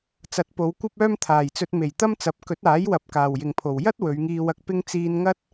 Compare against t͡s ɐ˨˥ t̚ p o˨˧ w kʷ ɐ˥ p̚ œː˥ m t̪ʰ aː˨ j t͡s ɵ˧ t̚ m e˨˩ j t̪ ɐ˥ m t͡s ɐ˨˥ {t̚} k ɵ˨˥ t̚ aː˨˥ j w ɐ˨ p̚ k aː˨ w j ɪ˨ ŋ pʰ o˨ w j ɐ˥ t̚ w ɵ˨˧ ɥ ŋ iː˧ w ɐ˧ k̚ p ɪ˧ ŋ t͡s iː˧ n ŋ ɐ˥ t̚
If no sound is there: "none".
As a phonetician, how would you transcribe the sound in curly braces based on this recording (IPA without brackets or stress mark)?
p̚